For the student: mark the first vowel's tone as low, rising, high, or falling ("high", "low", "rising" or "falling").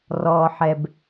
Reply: low